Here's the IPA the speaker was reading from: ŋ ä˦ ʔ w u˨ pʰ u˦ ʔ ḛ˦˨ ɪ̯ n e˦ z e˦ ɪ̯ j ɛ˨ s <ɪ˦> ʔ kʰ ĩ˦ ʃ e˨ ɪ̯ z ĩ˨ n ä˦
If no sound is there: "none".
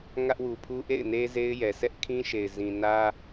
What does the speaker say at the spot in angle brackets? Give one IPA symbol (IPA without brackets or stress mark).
ɛ˦